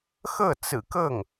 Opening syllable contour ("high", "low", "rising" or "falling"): falling